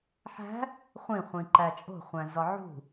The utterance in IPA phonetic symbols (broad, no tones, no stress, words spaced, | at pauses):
ħæ̤ | χʷĩ χʷĩǃæt͡ʃʼo̤ χʷæ̃zɒʕṳ